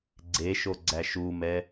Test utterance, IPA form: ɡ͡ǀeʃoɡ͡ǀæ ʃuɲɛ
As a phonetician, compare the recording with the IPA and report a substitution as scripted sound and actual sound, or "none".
ɲ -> m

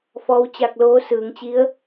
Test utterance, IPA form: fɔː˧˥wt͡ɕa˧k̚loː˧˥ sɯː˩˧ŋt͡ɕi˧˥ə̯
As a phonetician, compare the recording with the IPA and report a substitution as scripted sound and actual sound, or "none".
none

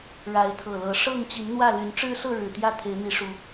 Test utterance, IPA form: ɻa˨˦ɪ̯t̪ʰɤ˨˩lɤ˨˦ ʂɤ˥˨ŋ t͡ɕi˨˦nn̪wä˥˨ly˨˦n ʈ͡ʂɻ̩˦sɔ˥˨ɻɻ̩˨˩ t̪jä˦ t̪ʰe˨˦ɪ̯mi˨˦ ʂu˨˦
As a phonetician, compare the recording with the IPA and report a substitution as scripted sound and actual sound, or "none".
ɔ˥˨ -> ɤ˥˨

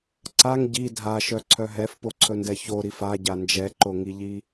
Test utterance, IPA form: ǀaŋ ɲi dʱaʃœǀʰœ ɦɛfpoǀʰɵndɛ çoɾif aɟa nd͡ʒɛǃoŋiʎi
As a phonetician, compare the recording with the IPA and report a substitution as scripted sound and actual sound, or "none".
ɲ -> ɟ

